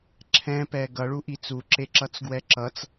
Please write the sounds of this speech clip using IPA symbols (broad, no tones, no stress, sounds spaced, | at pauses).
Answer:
ǁʰ ɛ̃ p ɛ ɡ ʌ ɭ u ʔ i t͡s u ǁ e ǁ ʌ t͡s ɡ w ɛ ǁ ʌ t͡s